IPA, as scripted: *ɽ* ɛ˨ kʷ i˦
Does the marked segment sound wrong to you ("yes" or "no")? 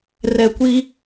yes